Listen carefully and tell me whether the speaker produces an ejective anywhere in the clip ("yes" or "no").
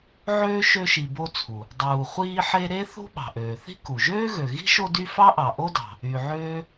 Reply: no